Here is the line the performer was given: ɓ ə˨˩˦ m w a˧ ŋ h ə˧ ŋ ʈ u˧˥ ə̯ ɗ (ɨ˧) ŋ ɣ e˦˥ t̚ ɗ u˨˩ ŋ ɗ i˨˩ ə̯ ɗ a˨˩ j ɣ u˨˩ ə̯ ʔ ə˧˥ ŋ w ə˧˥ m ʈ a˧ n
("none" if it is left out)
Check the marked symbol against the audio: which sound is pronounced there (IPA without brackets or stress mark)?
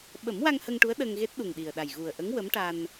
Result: ə˧